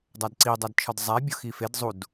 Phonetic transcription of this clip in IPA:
dˤædǀi dˤædt͡ʃʰɒdzˤæ bʲoxifed zˤud

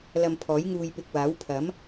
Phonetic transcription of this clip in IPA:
lɐ˧mpʰɔː˨˥jŋuː˧jpɪ˧k̚ waː˨˥w pʰɐ˨˥m

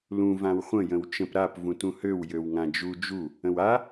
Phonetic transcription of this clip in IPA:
lũ vãwχʷə̃ jə̃wt͡ʃə̃p ɾap vũtũhøw jøwŋãd͡ʒu d͡ʒu | ə̃wa

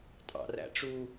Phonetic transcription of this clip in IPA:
tʼɑ̰r æ̰ʈ͡ʂu

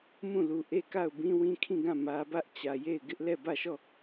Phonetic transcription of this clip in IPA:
mũ˦˨lu˨ ʔe˦˨ka˦˨ʊ̯ bĩ˦wĩ˦kʰĩ˦˨ɡã˦˨ mä˦ bä˦ʔt͡ɕä˨ je˦˨ɪ̯ ɡɪ˦ʔlɛ˦˨bä˦˨ʃɔ˦˨

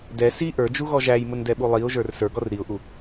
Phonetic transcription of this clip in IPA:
dɛ si ʔə˞d͡ʒuɣɔ ʒæjmʊndɛɓu lˠiʊ̯ʒə˞r sə˞ɡɔr ɾiʊ̯ʔu

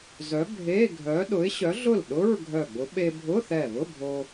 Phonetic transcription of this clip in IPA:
zœ˨˥bʱe˧˥˧ɡʱœ˨˥ ɗʊ˨˥ɪ̯ɕœ˨˥ɮʊ˥˩lɗʊ˧˥˧ɹ ɡʱœ˧˩ɡ͡bʊ˨˥ ɓe˧bʱʊ˧˥˧θɛ˧˩βʊ˧˥˧ bʱo˧

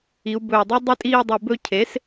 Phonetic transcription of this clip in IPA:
i˩˧u̯bɵː˨˩ dˤɵ˦dˤi˦˨tʼiː˦˨ dˤi˨˩bɵ˦˨cʰe˩˥s

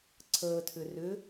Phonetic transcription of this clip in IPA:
ǀʰəːtʰʏ rʏ

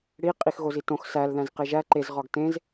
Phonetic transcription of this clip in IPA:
ɽi qʼixɣozitõx sæl ðæ̃zqeʒæ ǃez ʁɒɡtẽz

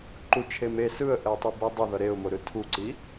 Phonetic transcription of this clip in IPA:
ǃu t͡ʃʰeme sɯə̯ʔɛɪ̯tˤɯ bedˤʌðʌ ɾeʊ̯moɾɯ tʰuǀi

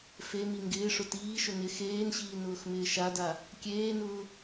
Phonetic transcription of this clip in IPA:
femi ŋɡɪːʂʊ tiːʃʊ nɪ xeːnɕiː nʊːxmɪːʃada | kʲeːnʊː

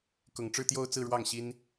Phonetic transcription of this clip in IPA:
kʊ˨˩ŋ ʈ͡ʂɻ̩˥˧t̪jo˥˧ʊ̯t͡sɹ̩˥˧ ɻwɑ˥˩ŋɕi˥n

